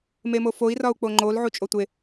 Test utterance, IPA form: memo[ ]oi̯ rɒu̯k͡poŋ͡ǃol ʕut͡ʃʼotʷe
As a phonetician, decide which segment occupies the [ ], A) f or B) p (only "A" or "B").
A